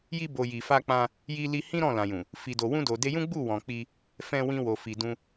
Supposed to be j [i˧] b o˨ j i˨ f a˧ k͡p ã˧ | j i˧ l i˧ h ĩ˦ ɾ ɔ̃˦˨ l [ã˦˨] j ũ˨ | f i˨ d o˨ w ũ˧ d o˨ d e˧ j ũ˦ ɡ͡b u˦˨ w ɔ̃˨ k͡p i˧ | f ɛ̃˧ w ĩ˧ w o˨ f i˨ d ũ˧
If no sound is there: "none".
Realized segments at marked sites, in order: i˧, ã˨

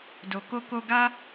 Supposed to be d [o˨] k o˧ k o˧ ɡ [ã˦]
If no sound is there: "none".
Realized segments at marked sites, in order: o˨, a˦

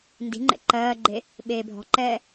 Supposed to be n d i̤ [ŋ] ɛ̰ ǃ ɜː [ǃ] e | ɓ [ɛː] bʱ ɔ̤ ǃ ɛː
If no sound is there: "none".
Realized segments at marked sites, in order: ŋ͡ǃ, ɡ͡ǃ, eː

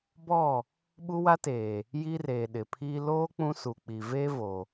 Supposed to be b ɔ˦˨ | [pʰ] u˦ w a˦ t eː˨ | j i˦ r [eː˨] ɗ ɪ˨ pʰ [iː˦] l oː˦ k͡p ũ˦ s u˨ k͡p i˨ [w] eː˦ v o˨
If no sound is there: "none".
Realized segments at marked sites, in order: ɓ, eː˨, iː˦, v

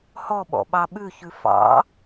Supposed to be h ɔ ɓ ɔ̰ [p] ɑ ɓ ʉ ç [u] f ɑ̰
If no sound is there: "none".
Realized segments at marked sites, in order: ɓ, ʉ

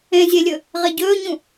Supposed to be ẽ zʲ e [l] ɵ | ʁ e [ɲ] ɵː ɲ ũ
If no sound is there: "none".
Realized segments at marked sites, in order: lʲ, ɟ

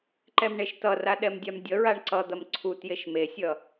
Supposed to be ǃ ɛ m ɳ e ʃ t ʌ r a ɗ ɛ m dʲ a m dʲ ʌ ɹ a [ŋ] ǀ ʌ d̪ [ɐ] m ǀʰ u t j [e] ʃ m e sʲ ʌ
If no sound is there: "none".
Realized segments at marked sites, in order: ɳ, ɐ, e

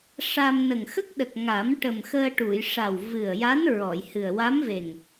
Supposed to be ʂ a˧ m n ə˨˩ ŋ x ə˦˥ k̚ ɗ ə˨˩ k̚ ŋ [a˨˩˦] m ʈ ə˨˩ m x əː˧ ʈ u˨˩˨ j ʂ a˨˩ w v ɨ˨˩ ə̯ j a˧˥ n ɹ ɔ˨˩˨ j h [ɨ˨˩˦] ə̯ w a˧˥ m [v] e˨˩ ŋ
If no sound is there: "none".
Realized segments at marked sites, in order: a˨˩˦, ɨ˨˩, v

